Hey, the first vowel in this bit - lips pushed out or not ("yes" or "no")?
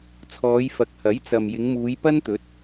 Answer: yes